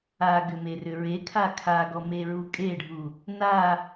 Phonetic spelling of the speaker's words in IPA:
aɡʏmerʏ ɹekʰa kʰaɡɔmeɹu kʼeɖʱu | na

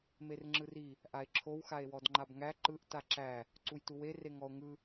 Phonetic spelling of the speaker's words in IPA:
merŋ͡ǁɯri | ʔae̯ǁʰow xae̯wɔdŋ͡ǃabŋæ ǃɯʔ taǁæ | ǀujtuwe reŋɔo̯ŋɯ

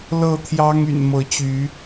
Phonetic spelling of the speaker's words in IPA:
lɤ˥˨t̪ʰjɑ˦ŋ y̰˨˩nmɤ˨˦t͡ɕy˨˦

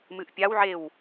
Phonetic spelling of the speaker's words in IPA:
mɨʔpʲawʕew

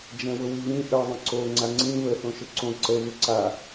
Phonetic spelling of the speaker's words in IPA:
d͡ʒɛ̃wʊwiβĩ ʔə ðˤə̃ǀo ŋ͡ǀaŋ͡ǀĩ βə θõʃʊǀõ ǀə βʊǀa

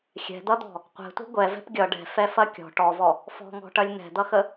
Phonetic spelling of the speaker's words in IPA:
xʲɛ̤d̪ʌd̪ɔ̤ | qʷɛ̤tʷɛ̤ ɡʷɛvɛ̤p ɡʲʌ ɖɛ̤fɛfɐ kʲɔ̤ ʈɔvɔ | fɔ̤ŋɔ̤ʈɐlʲ n̪ɛ̤d̪ʌxə

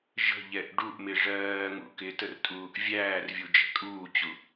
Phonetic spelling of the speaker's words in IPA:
ʒə̤ ʎɛʔɖuʔmɪ ʐɜːŋṵ kɪtər tʼuːʔvʲæːrvʲu d͡ʒɛ̤kʼuːt͡ɕu

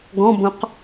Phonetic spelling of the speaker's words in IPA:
ɡɔ̃bõq

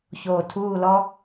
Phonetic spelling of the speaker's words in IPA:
ço˧˩tʰuː˥˧lɔ˥

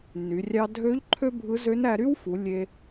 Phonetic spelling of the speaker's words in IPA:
ny˩˧ rʲɑ˧dʱø˧˥ʎ ǃʰø˥bʱɯ˧˥ zø˧˥næ˧ɾy˥wfu˩˧ lʲe˧

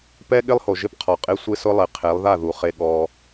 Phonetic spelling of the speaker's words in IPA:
pɛ˦ ɠɪ˦lˠho˨ ʒɪ˦pqʰɔ˨qʼe˦ sʷe˦sʊ˦lˠɪ˨˦ qʰe˨˦lˠða˦˨ðu˨χe˧ ɠɔ˧

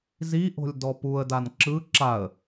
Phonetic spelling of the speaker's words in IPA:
ziʔo̤lʲdɔ puə̯dan ǁɯ ǁaə̯

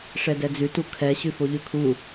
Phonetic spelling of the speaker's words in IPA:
ʂɛdɛd͡zʉtu kʰɛ ɕʉfoʎʉkʰu

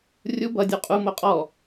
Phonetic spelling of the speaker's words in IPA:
rʲu bʌdʲu qʼumo qʼɔ

